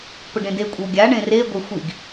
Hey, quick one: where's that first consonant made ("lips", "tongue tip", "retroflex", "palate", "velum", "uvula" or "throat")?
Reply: lips